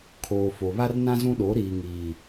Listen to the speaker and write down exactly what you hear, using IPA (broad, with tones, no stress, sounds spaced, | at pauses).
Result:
kʰ oː˨ f o˨ β a˦ r n ã˦ z ũ˦ ɗ o˨˦ ɾ iː˨ ŋ iː˨